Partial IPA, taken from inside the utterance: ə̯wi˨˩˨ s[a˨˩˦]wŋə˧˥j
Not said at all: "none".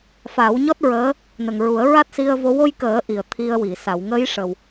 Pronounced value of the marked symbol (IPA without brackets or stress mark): a˨˩˨